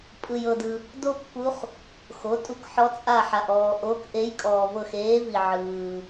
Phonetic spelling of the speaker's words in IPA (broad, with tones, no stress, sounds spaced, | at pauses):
pʼ ɯ˨ j ɤ˨ d ɯ˨ | d o˥ pː u˧˥ χ | x o˩˥ tʼ u˧˥ k ħ ɔ˧˥ t͡sʼ a˦˨ ħ a˨ ʔ ɔː˨ ʔ o˧˥ k ʔ e˧˥ j kʼ ɔː˨ v ɤ˦˨ x eː˧˥ v i˨ ʕ ɯː˨